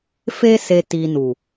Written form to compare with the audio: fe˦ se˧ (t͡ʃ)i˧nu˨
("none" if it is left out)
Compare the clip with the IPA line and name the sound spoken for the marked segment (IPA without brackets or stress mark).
t